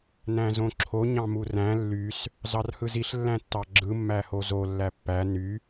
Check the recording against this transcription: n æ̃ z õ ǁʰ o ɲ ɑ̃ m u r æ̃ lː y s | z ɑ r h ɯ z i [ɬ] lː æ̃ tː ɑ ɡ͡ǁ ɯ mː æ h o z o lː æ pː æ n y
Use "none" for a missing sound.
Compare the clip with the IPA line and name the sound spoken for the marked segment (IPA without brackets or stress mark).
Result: ɬ